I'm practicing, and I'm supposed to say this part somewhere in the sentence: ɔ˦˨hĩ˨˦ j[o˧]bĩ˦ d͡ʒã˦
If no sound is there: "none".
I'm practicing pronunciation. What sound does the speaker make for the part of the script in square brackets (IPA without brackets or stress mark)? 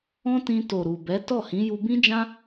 u˧